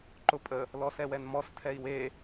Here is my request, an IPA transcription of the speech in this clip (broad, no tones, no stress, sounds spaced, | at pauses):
ǃ ʊ pʼ ə | l ɔ s ɛ w ɛ n m ɔ s tʰ ɛ i̯ w e